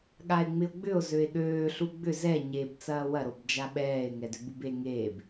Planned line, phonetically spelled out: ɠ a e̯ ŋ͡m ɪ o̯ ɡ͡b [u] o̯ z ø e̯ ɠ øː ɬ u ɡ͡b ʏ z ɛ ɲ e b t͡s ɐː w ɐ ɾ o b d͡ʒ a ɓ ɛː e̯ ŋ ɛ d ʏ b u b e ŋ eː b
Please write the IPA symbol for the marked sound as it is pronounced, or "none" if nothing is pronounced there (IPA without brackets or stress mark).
ʏ